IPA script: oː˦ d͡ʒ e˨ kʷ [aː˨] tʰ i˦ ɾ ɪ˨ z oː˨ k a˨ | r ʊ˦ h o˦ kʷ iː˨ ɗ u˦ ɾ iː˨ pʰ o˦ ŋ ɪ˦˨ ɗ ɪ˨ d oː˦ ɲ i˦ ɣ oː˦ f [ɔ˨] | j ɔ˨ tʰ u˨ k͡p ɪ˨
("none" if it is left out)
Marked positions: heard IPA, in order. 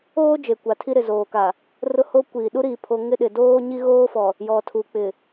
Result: a˨, ɔ˨

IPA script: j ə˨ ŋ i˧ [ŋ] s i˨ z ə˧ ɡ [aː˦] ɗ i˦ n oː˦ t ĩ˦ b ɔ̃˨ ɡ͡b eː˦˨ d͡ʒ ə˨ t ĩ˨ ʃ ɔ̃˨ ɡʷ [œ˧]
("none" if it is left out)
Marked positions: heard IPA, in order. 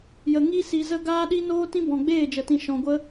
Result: none, aː˦, ə˧

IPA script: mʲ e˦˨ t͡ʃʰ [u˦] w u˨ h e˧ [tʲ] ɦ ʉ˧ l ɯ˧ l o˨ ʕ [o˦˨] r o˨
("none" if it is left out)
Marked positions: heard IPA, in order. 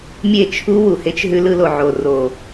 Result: u˦, t͡ʃ, o˨

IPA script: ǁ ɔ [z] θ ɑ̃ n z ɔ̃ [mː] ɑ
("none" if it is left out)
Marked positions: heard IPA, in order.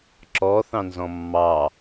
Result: none, mː

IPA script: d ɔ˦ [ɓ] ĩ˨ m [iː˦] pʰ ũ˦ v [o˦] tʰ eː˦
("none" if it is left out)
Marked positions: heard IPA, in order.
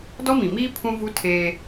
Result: m, iː˦, u˦

